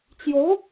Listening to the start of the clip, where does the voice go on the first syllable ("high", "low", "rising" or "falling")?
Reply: rising